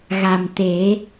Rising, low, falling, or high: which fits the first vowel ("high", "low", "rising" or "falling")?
low